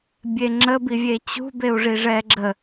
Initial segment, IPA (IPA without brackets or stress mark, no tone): bʲ